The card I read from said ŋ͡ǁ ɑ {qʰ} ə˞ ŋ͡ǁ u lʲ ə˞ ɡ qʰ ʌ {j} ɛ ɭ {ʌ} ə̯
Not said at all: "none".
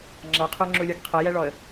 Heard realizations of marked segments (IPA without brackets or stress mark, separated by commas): qʰ, j, ɔ